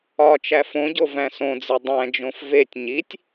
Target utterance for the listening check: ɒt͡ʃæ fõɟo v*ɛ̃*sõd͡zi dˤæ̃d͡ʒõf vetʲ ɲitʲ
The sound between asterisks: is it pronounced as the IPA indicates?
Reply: no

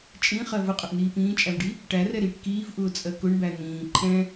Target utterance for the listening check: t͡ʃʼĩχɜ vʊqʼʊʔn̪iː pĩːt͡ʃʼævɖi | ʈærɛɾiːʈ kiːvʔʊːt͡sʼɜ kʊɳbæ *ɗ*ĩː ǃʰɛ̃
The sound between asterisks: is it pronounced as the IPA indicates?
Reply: no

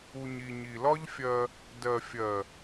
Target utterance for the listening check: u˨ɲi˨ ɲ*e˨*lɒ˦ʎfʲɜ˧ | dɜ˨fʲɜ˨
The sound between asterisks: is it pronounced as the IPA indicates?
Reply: no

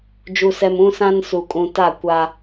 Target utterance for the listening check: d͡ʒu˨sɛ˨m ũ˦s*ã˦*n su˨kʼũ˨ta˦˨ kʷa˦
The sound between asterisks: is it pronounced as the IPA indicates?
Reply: yes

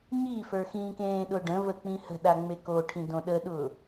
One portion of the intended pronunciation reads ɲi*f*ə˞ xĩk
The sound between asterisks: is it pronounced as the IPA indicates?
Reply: yes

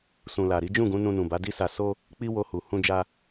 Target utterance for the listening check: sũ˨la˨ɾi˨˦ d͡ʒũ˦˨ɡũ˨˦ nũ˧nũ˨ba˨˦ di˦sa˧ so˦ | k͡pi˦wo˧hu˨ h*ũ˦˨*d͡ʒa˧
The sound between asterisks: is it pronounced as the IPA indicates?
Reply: no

